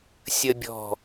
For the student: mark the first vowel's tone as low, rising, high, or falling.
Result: high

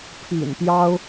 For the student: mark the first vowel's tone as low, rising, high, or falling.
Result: low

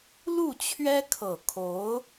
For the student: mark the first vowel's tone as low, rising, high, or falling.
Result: falling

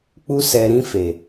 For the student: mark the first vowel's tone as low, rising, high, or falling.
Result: high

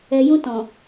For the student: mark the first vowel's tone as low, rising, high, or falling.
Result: low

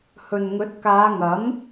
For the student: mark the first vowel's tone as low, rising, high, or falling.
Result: low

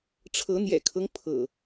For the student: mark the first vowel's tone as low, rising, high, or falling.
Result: rising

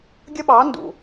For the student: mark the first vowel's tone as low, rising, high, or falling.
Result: high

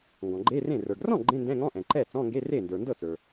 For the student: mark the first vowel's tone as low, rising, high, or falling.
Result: low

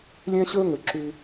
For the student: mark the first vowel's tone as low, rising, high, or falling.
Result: high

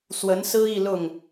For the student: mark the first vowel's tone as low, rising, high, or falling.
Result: rising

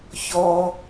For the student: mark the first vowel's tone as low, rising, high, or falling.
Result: high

